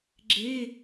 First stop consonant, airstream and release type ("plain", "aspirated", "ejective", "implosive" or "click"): click